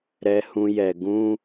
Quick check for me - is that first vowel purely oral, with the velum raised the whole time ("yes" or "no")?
yes